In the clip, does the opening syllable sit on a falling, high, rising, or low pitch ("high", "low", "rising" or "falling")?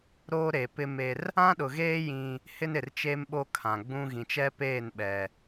high